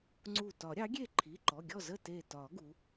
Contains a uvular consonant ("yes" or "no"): no